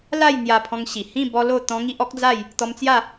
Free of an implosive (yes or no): yes